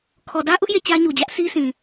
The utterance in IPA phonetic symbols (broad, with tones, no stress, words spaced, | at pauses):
kʰɔ˨dä˦ʔʊ˦ʔ je˦˨t͡ɕä˦ɲu˨d͡ʑä˦ʔ sʰi˦sĩ˨